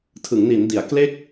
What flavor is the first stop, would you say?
aspirated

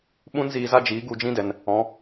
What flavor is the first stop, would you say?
implosive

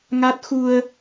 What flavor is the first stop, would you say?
plain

